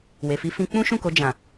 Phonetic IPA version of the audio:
w e˨ f i˧ f ĩ˧ k͡p ũ˦ ʃ ũ˦˨ k o˧ d͡ʒ ã˨

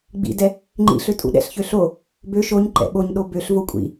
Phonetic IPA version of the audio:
ɡ͡b ḭ d ɛ | ŋ͡ǃ ḭ ɬ ø tʼ ṵ ɗ ɛ̰ ɬ ç ø ɬ o | b ø ʃ o ɲ ǃ ɛ̰ ɓ o ɲ ɗ o b ø ɬ v o kʷʼ ḭ

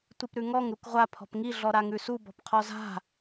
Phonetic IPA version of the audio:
tʷ i p ɾ ʉ ŋ ɔ ŋ ɾ u k ʁʷ a pʰ ɔ̤ p ŋ i ɮ ɔ ɾ a ŋ ʉ s u b ɔ̤ p qʰ ɔ z a̤

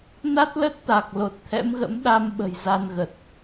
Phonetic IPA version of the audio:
n a˦˥ t̚ l ə˦˥ t̚ t̪ a˨˩ k̚ l o˨˩ t̚ t̪ʰ ɛ̰˧˥ m ɣ ə̰˧˥ m ɗ a˧ m ɓ ə̤˨˩ j z a˧ n ɣ ə˨˩ t̚

